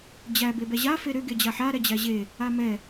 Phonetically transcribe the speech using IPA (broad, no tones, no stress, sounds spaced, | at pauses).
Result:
d͡ʑ æ b e b ɛ ʑ a f e ɾ ʏ ɡ e d͡ʑ a ħ a ɾ ɛ d͡ʑ æ ʑ e | a m ɛ